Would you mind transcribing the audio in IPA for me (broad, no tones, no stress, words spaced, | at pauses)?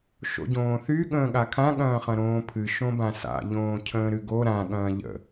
ʃo̰ɟõːθy ɠə̃ːɠakʰã ɠɐ̃ːχɐ̃ɾõːpʰɨ ʃõbãsa̰ ʎõːcʰə̃ːɾɨɡo ɾã ɠɐ̃ːʎə̰